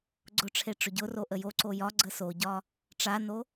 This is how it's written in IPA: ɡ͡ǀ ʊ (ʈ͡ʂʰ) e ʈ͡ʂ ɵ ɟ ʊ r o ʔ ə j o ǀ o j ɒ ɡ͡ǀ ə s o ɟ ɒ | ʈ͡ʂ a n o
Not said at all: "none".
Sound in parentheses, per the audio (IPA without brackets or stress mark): ʈ͡ʂʰ